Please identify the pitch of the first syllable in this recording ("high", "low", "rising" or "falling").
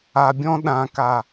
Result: low